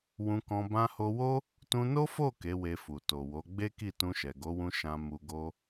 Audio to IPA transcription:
w ũ˧ k ɔ̃˧ b ã˧ h o˧ w o˦ | t ũ˧ n o˦ f o˦˨ k e˨˦ w e˧ f u˨ t o˨ w o˨˦ ɡ͡b e˦ k i˦˨ t ũ˧ ʃ ɛ˨ ɡ o˨˦ w ũ˧ ʃ ã˧ m u˧ ɡ o˦

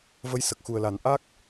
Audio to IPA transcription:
v ə˧˥ j s ə˨˩ k̚ x u˨˩ ə̯ l a˨˩˦ n ʔ a˦˥ k̚

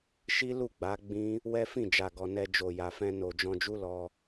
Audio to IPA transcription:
ʃ i˦ l u˦˨ ɡ͡b a˨˦ ɡ͡b ĩ˦ | w ɛ˦ f ĩ˦˨ d͡ʒ a˨ ɡ ɔ˨ n ɛ˧ d͡ʒ o˨ j a˨ f ɛ̃˧ n o˨ d͡ʒ ɔ̃˧ d͡ʒ u˦ l ɔ˧

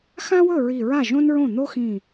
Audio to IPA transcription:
x ã˥ w ɵ˥˩ ɹ i˧˩ ɹ a˥˩ ʒ õ˥ n ɹ õ˥˩ n̪ o˥ x ĩ˧˩

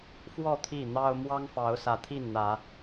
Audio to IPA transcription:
f w ɔ˥˨ t̪ʰ i˥˨ n̪ ɑ˦ ʊ̯ m w ɑ˦ ŋ f ɑ˨˦ ʊ̯ s ä˨˦ t̪ʰ i˥˨ n n̪ ä˨˦

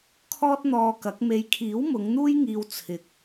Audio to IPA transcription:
kʰ ɔː˥ t̚ n̪ ɔː˧ k ɐ˨˥ k̚ m e˨˧ j kʰ iː˨˥ w m ʊ˨˧ ŋ n̪ uː˥ j ŋ iː˧ w t͡sʰ ɪ˧ k̚

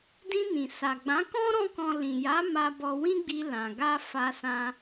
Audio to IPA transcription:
d ĩ˧ n ĩ˨ s a˨ ɡ͡b ã˨˦ k ɔ̃˦ ɾ ɔ̃˦ k ɔ̃˧ l ĩ˨ j a˨˦ m a˧ b ɔ˧ w ĩ˦ ɡ͡b i˧ l ã˨ ɡ a˧ f a˧ s ã˧

